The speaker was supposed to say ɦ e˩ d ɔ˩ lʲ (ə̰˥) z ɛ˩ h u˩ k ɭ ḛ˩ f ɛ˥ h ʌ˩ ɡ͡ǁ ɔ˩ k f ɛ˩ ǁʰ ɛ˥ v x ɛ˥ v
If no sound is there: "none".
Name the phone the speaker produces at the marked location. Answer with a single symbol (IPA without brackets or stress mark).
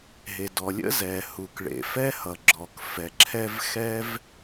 ə̰˥